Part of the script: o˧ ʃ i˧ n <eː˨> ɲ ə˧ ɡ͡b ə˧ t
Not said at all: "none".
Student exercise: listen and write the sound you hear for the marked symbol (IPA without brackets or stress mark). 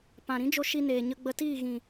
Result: eː˨